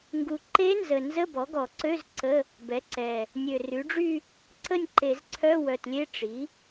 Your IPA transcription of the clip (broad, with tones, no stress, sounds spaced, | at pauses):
ŋ ɡ u˨˩ ǃ e˧˥ n z ə˨˩ n z ə˧˥˧ b ɔ˩˥ ɡ ɔ˧˩˧ ǀ ø˧˥˧ z ǀ ə˧˥˧ | b ɛ˩˥ ǀ ɛ˨˩ | nʲ ø˨˩ r y˩˥ ɖ͡ʐ y˥˧ | ǀ ə˥˧ nʲ ǃ e˧˩˧ z ǀʰ œ˧˥˧ w œ˨˩ t lʲ e˧˥˧ ʈ͡ʂ i˩˥